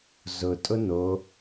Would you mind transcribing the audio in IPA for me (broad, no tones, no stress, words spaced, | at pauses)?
zʊ tʼʊno